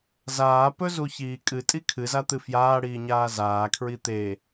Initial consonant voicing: voiced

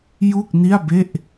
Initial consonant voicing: voiced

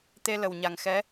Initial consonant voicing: voiceless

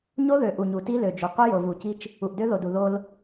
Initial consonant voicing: voiced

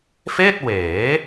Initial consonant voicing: voiceless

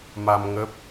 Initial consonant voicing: voiced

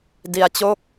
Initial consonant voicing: voiced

